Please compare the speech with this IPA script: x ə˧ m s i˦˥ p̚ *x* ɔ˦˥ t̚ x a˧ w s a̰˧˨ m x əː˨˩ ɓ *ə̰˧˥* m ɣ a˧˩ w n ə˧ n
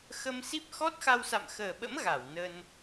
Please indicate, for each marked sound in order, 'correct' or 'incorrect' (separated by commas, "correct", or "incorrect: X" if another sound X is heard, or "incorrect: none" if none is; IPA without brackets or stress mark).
correct, correct